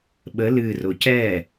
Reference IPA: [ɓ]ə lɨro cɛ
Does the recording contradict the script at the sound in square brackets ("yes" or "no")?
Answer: no